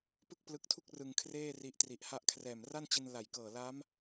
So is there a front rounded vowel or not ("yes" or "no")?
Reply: no